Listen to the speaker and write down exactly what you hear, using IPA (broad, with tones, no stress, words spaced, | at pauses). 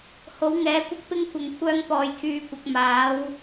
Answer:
ho˨˥wŋɛː˨˥kʷɐ˥k̚pɪ˥ŋ kʷɐ˨ŋkʷʰœː˧ŋ pɔː˨jkʰyː˨˧kʷɐ˨k̚ maː˨˥w